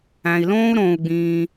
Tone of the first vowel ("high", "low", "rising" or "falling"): low